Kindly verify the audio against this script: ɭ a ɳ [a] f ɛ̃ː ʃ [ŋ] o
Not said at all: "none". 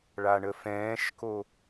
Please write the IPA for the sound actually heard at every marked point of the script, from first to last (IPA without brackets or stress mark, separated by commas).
ə, k